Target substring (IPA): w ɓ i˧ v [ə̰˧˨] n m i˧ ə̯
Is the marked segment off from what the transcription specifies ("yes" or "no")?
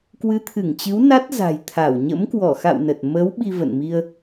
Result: no